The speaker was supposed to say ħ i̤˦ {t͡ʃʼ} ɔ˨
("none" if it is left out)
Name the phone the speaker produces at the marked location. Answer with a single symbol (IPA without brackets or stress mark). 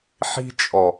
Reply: t͡ʃʼ